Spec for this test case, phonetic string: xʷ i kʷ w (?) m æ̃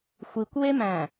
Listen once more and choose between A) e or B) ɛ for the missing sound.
A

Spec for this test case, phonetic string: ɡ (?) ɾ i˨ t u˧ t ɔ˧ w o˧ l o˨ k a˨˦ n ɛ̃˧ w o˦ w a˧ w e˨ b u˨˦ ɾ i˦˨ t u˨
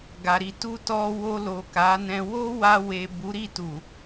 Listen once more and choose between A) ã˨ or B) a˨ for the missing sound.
B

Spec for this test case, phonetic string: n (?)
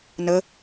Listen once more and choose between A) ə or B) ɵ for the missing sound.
A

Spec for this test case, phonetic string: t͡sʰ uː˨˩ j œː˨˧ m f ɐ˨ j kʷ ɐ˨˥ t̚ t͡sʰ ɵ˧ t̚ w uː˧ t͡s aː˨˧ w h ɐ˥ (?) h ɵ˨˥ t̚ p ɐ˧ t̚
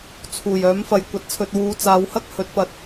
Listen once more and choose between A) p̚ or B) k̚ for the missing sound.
B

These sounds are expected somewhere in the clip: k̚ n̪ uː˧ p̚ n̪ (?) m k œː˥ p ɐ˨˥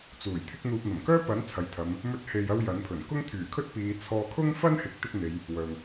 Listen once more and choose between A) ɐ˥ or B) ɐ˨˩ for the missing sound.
B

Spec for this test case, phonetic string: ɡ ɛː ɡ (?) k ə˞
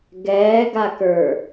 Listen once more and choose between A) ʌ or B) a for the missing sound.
B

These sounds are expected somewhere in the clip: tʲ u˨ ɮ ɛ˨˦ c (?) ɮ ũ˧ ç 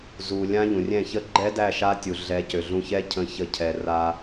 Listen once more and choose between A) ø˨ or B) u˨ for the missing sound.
A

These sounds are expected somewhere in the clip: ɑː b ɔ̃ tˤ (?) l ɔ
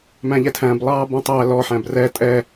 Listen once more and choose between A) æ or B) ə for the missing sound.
A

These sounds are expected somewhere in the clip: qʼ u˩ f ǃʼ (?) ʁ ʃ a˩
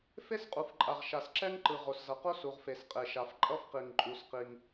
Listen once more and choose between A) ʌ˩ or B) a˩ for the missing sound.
B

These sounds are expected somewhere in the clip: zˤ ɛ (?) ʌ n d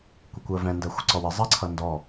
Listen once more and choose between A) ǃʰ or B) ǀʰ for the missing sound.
B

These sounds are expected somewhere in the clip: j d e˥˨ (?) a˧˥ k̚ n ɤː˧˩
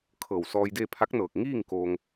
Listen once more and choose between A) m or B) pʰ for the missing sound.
B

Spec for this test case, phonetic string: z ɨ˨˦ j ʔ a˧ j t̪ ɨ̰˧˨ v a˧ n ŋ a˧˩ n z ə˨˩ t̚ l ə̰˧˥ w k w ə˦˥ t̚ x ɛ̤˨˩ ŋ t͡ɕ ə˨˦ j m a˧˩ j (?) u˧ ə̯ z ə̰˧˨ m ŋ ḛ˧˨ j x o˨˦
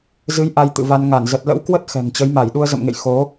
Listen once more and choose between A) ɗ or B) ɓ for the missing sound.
A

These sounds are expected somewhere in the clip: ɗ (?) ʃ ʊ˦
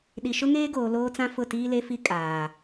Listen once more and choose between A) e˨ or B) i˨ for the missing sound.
B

